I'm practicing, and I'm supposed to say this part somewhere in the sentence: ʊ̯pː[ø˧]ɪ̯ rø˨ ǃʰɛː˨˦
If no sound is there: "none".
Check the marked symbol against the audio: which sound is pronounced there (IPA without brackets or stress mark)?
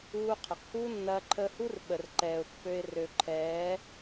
ø˧